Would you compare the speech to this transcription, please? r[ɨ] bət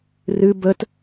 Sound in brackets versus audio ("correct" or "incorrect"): correct